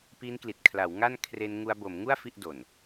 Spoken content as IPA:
pi˦˥nkli˨˩t̚kʰla˩˦wŋa˥˩n kʰre˧nŋu˧a̯bo˩˦mŋu˥˩a̯ fi˥˩ʔdo˨˩n

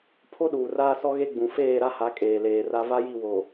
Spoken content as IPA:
pʰo˦ɗuː˨raː˦ sɔ˦ɣe˦ɡ͡bũ˨ feː˦˨ɾa˦ha˨˦ kʼeː˨leː˨ra˦ va˦ji˦˨wo˨

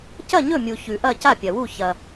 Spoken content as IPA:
cɐ˥˨ɲɵ˥˨mʲu˨ çʉ˨ʔɐ˥˨ ca˥˨pʲɐ˨wu˥˨ çɐ˨

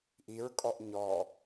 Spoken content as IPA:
ʔiɹkʼɔʔ ɲɔ

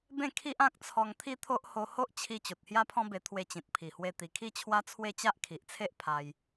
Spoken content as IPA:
bẽ˥˧kʰi˦ʔã˦k̚ t͡sʰɔ˧ŋt̪ʰi˦t̪ʰo˦ʔ ho˧ho˦ʔ t͡ɕʰi˧ t͡ɕo˨t̚hja˦pʰɔ̃˦be˧ t̪ʰwe˧t͡ɕĩ˨t̚ pʰi˨˩hwe˧ t̪i˨˩kʰi˥˧t͡ɕʰwa˦t͡sʰwe˥˧ t͡ɕa˦ʔkʰi˨ʔt͡sʰe˦ʔ pʰa˧j

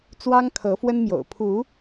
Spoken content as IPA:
t͡swɑ˦ŋkʰɤ˨˦fwə˦nmjo̰˨˩ʊ̯ pʰu˨˦

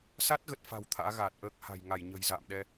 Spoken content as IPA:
sa˦˥t̚ɣə˨˩t̚fa̤˨˩w t̪ʰa̰ː˧˥ ɣaː˨˩t̚ʔəː˦˥k̚ha̤˨˩j ŋa˧˩jɲə̤˨˩jza̰ː˧˨mɗɛ˧

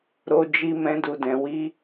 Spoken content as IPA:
ɾo˧d͡ʒi˧ mɛ̃˧du˨dɛ̃˨ wi˧

